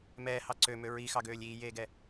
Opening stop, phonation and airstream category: click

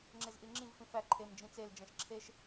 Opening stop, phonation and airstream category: click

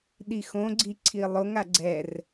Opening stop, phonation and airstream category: implosive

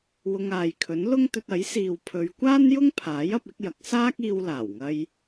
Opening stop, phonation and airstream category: aspirated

